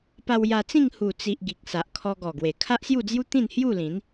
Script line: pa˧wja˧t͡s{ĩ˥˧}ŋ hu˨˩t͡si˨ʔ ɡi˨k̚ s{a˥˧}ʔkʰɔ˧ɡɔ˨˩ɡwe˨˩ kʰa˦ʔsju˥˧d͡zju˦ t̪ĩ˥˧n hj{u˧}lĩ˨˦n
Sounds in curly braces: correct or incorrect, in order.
correct, incorrect: a˨, incorrect: u˥˧

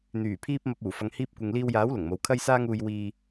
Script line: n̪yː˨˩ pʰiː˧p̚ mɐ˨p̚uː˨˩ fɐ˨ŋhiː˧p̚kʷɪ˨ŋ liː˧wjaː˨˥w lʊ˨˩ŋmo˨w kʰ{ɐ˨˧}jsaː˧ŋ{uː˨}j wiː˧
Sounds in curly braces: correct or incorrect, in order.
incorrect: ɐ˧, correct

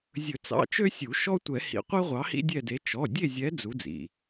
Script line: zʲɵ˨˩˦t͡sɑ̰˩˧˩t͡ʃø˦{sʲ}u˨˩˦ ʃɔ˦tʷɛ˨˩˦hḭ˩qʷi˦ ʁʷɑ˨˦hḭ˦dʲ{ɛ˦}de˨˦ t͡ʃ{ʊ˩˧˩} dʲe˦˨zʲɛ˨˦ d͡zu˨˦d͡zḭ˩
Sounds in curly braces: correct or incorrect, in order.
correct, incorrect: ɛ˦˨, incorrect: ɔ˩˧˩

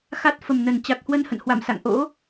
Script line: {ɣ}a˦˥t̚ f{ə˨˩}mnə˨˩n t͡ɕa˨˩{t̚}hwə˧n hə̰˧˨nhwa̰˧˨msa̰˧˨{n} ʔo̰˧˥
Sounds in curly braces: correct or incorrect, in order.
incorrect: x, correct, incorrect: k̚, incorrect: ŋ

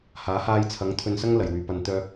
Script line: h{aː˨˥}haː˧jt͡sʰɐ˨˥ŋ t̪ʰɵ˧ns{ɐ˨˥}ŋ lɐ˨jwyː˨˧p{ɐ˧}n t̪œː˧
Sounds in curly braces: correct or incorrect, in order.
correct, incorrect: ɐ˥, correct

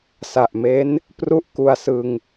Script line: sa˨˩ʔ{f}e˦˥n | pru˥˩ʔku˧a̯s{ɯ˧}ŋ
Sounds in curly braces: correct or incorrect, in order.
incorrect: m, correct

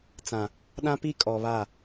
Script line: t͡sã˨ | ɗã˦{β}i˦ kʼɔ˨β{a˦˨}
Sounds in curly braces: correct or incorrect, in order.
incorrect: p, correct

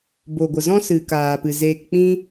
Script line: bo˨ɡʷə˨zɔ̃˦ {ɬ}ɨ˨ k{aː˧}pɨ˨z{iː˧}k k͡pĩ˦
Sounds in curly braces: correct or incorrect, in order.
incorrect: s, incorrect: aː˨, incorrect: eː˧

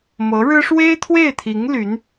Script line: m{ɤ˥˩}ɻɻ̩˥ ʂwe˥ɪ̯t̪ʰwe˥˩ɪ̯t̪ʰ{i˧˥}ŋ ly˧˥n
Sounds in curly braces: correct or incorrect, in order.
incorrect: ɤ˧˥, correct

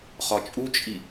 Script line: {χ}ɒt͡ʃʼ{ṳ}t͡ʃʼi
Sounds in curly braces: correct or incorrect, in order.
correct, incorrect: u

